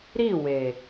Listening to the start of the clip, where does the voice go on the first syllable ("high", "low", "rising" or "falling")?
falling